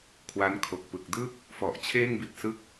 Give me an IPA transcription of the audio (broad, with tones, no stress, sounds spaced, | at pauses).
kʰ w a˦˥ n kʰ o˨˩ k̚ p ɯ˨˩ k̚ d ɯ˥˩ k̚ | f ɔ˨˩ ʔ t͡ɕʰ eː˥˩ ŋ b i˨˩ t̚ s ɯ˦˥ k̚